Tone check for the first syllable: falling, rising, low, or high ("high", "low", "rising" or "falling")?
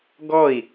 falling